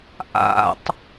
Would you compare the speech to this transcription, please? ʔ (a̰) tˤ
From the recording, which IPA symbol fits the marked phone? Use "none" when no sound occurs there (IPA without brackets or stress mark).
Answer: a̰